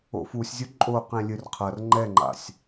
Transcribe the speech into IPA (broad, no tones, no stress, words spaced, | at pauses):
o̰fusʲzʲu ǃʼoqẽ lʲɨr qʰɐr ŋ͡ǃɛŋ͡ǃa̰sʲ